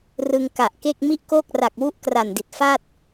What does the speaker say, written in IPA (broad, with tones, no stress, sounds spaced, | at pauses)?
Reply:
r ɯ˧ ŋ k a˨˩ ʔ k e˥˩ k̚ m i˥˩ ʔ k oː˥˩ k̚ r a˨˩ k̚ w u˦˥ ʔ k r a˨˩ n d i˨˩ t̚ f a˥˩ t̚